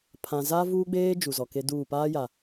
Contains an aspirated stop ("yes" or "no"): yes